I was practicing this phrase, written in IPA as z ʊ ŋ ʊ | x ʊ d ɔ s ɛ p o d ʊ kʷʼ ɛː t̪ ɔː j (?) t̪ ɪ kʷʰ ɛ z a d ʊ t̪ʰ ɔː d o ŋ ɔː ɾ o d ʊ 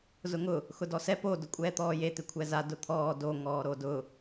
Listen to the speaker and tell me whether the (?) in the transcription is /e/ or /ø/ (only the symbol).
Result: e